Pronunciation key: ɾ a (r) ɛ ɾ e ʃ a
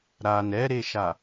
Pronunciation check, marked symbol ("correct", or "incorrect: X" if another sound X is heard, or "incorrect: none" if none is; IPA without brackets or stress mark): incorrect: n